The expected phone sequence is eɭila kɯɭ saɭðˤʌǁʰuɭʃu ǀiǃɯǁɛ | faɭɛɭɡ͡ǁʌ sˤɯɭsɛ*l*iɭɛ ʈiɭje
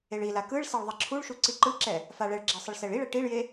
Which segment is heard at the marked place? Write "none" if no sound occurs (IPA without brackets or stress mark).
ɭ